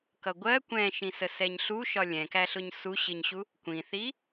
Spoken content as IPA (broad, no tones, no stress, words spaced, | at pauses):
kʌɡʷɜ kʷɛ̃ʃĩsə sɛɲɬu ʃɒlʲɛ̃kæ ɬʊɲsuɕɪɲɕu | kʷĩθi